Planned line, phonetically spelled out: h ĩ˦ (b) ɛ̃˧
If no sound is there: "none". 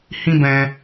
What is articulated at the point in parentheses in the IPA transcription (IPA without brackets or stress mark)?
b